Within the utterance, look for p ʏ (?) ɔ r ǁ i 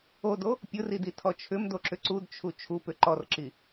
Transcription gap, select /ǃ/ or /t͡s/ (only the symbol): ǃ